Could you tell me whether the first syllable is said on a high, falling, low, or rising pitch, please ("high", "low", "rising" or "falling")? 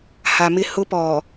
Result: low